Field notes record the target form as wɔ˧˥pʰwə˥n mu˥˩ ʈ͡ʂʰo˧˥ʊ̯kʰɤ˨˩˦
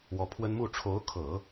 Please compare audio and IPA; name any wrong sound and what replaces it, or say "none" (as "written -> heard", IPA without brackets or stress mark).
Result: none